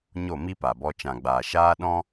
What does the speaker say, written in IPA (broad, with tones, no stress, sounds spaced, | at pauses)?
ɲ o˦˨ m i˦ p a˨ b ɔ˧ t͡ʃ ã˨ ɡ͡b aː˨ ʃ aː˧ ɗ ɔ̃˦